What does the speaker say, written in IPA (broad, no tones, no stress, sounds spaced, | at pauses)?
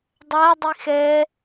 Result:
dˤ a dˤ i x ɛ